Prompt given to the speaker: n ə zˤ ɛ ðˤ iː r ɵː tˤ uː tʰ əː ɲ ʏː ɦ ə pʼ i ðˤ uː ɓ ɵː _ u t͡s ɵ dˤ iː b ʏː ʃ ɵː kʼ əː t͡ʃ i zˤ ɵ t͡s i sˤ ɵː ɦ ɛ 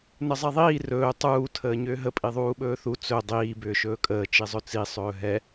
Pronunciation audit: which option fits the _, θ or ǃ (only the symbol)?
θ